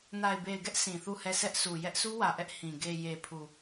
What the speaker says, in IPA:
n a˨ ɪ̯ b e˨ ɪ̯ ɡ ɛ˦ ʔ sʰ ĩ˨ θ u˦˨ h ɛ˦˨ s ɛ˦ ʔ sʰ u˨ j ɛ˦ ʔ s u˦ w ä˨ ʔ ɛ˦ ʔ h ĩ˨ ɡ e˨ j e˨ pʰ u˨

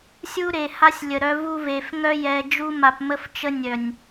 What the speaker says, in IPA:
sʲ u˦ ɾ e˨ h a˦ sʲ lʲ ə˨ ɾ œ˦ v u˦ v e˨ f ŋ œ˦ j ɛ˦ d͡ʒ u˦ m a˨ p m ə˦ f t͡ʃ ə˦ nʲ œ˨ nʲ

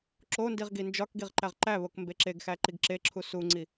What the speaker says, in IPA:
ǁ o n d i ʁ ɡ i n d͡ʒ ɒ k ɡ i ʁ ǃ æ ʁ ǃ æ β o k m b e ǁ e ɡ x æ ǃ i ɡ ǁ e ǁʰ u s u ŋ͡ǀ i

